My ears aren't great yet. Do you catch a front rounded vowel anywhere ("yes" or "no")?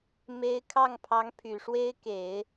yes